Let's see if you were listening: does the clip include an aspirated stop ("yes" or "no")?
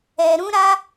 no